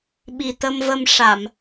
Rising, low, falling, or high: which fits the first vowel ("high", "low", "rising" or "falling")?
low